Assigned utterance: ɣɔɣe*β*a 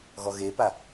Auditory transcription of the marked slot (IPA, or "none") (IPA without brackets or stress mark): p